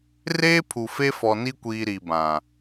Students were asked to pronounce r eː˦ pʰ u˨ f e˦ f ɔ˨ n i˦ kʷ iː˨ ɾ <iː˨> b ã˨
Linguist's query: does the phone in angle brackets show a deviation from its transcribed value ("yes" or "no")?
yes